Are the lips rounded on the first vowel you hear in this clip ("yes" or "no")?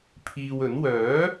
no